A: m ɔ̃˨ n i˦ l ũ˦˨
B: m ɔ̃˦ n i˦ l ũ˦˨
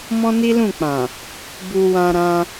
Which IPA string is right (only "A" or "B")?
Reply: B